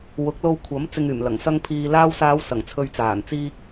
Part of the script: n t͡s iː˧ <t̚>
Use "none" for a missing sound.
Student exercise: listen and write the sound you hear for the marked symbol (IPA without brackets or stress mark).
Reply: k̚